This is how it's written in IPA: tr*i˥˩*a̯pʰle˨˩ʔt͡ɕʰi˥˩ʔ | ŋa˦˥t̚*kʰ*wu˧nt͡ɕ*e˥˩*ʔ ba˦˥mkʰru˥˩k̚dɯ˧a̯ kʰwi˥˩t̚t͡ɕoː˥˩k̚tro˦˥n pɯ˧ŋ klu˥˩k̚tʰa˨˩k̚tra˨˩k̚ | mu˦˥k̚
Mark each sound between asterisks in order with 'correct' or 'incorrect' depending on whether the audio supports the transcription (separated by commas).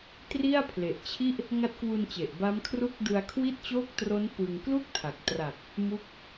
correct, incorrect, incorrect